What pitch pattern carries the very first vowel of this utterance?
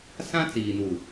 high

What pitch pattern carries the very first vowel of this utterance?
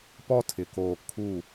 high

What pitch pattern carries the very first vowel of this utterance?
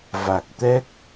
low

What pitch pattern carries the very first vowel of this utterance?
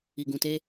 low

